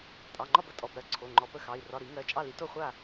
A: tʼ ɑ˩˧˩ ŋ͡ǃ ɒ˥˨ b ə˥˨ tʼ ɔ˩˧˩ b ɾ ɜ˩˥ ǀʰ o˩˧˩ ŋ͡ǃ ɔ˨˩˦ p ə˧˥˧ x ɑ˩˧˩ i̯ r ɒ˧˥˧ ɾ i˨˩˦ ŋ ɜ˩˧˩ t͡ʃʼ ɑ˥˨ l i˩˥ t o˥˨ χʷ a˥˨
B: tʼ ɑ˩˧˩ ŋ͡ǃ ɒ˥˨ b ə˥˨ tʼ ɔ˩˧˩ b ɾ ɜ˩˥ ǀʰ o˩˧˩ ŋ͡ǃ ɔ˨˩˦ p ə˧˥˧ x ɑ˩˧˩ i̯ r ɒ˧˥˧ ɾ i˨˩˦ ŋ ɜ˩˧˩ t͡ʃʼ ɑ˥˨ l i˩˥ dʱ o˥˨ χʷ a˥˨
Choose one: A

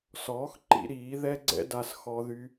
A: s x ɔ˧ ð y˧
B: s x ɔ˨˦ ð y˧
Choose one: A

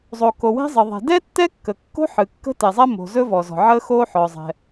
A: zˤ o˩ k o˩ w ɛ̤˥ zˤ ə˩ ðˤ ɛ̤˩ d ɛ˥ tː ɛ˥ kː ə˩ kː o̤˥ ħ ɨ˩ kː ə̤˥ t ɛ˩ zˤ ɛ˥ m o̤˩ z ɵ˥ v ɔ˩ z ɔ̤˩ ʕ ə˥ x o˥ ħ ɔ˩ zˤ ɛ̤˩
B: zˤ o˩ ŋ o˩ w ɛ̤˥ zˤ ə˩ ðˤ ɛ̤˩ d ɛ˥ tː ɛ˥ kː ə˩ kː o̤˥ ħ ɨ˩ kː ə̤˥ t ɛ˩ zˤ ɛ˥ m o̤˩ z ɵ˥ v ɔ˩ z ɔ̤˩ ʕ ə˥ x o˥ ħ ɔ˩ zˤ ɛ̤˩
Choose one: A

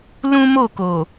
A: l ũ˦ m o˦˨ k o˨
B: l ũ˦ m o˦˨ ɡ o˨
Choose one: A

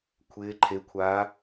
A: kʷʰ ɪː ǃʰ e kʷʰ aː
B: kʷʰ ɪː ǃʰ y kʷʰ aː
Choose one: A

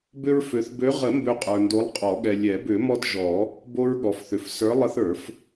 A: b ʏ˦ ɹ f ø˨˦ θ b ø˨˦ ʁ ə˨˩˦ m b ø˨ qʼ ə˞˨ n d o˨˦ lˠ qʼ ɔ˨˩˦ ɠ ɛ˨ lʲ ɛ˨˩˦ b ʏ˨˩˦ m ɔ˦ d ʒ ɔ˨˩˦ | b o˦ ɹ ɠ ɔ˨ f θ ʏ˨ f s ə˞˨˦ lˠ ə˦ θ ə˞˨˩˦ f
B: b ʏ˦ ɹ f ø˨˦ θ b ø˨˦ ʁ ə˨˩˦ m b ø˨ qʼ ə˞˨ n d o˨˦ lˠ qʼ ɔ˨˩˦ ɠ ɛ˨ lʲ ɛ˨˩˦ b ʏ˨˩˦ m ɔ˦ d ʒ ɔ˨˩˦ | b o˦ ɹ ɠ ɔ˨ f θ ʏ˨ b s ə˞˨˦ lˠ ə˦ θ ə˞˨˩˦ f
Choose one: A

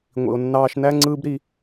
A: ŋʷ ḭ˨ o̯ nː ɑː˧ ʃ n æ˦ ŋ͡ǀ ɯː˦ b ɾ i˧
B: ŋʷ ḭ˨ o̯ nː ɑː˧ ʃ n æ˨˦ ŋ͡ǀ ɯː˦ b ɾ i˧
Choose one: A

